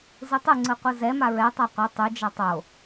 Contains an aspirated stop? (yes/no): no